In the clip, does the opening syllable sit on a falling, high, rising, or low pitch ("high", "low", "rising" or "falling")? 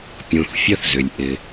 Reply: low